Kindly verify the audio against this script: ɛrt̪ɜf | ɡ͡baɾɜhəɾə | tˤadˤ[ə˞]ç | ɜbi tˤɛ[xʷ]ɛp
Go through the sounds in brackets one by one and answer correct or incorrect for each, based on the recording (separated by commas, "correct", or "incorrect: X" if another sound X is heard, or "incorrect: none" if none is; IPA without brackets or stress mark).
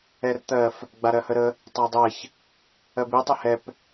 incorrect: ɜ, incorrect: h